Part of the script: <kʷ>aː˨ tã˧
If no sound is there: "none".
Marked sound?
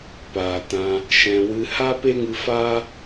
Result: p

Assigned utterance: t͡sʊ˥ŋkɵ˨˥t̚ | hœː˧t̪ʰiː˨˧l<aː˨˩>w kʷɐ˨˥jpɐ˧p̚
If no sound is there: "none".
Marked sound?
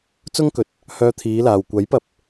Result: aː˨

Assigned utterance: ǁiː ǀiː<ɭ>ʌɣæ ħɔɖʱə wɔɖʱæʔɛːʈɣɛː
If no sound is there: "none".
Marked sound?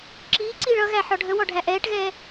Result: ɭ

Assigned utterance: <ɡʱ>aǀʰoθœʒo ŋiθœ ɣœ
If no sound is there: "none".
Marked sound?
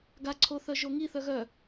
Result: ɡ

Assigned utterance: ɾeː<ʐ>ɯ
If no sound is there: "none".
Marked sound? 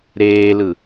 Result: l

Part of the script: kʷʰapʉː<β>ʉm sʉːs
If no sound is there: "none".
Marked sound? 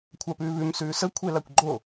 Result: β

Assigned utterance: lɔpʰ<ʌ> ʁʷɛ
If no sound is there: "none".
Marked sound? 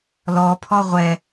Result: ɔ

